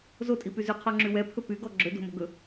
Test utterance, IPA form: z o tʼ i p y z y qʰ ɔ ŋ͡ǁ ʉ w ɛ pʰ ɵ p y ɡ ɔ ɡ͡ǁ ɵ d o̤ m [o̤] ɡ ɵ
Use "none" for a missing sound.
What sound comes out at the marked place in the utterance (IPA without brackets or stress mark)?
o̤